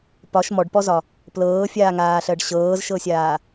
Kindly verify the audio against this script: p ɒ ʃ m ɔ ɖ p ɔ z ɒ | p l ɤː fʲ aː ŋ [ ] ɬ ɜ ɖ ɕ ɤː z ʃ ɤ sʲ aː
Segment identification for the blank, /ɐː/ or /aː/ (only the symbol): aː